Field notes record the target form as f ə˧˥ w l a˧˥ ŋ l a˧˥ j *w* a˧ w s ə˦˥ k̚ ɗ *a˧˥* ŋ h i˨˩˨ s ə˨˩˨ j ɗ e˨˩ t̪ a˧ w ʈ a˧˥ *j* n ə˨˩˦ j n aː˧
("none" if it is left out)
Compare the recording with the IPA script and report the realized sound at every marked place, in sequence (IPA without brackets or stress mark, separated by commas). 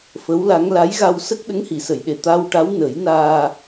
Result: ɣ, ə˧˥, w